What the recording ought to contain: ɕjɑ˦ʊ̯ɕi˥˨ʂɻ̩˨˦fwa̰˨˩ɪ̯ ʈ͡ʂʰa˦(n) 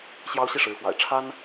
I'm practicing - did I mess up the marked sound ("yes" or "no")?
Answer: no